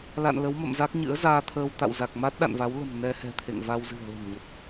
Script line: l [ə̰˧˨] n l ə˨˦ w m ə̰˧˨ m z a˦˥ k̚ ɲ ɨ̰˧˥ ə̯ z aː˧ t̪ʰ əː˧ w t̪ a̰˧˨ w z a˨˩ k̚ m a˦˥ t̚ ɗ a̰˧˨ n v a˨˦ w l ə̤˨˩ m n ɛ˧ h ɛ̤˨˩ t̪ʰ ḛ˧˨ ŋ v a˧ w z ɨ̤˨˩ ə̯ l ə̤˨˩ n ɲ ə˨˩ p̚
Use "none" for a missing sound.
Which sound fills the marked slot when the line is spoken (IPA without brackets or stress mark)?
a̰˧˨